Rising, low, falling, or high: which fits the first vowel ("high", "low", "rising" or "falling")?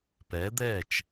rising